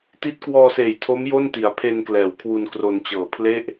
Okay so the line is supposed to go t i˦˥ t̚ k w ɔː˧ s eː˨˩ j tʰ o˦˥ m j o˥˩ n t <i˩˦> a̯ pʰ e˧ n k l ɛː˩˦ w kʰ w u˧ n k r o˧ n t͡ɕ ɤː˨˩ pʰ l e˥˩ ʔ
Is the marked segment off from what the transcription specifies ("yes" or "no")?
no